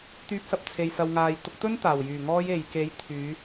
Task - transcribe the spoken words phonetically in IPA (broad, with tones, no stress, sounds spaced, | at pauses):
t̪ yː˧ p̚ s ɐ˧ p̚ t͡sʰ e˨ j s ɐ˨ w ŋ aː˨ j t̪ ʊ˨˥ k̚ t̪ ɵ˥ n t̪ aː˨˩ w j yː˨˩ ŋ ɔː˧ j e˨ j k e˨˥ j t̪ʰ yː˨˧